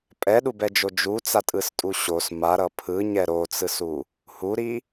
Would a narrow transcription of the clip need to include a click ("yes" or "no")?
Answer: no